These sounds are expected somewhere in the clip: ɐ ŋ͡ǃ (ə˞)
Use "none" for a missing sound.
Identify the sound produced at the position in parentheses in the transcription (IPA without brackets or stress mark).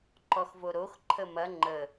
ə